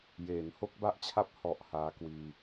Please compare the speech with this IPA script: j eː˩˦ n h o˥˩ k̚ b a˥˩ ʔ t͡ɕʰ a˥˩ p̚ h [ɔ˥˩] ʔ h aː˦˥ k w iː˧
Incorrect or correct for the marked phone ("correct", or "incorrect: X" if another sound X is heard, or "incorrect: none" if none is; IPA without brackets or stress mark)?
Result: incorrect: ɔ˨˩